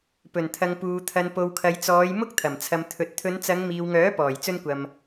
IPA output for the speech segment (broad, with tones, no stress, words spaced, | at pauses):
pɵ˨˩nt̪ʰɐ˨ŋpuː˨ t̪ʰɐ˨npo˨wkʰɐ˨jt͡sɔː˨˧j mʊ˥k̚t̪ʰɐ˨˩mt͡sʰɐ˨m t̪ʰɵ˨t̚t̪ʰɵ˨˧nt͡sɐ˨˧ŋ miː˨wŋœː˨˥ pɔː˨˩jt͡sɵ˧nkʷɐ˨m